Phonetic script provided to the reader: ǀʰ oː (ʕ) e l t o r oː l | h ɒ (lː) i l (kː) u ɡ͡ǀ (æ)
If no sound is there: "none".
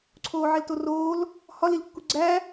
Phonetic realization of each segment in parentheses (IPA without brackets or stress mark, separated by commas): ʕ, l, kː, æ